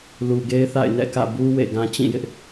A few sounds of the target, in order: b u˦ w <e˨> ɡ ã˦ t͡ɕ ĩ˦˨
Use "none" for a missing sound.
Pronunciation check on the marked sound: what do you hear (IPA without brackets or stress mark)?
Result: ḛ˦˨